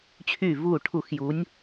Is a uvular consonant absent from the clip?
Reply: yes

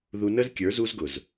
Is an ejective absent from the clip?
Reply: yes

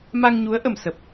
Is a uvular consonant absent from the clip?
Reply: yes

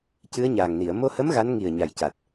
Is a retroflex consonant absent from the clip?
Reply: yes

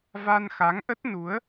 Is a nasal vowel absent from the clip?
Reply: yes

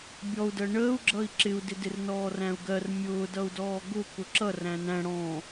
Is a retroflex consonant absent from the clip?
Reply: no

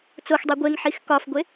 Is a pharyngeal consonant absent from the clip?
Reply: no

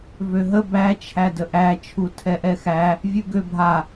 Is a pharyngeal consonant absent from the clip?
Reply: yes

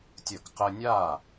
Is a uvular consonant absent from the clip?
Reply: no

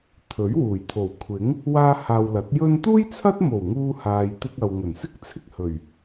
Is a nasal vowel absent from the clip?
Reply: yes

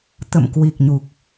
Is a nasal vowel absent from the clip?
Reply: yes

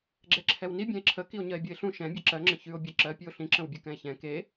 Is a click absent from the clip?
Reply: no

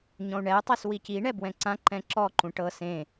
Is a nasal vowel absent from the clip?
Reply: no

